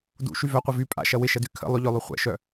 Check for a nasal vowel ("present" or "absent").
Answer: absent